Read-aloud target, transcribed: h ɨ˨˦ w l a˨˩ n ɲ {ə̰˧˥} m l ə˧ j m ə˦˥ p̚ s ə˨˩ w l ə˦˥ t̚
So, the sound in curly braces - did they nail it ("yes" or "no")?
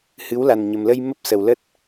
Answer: no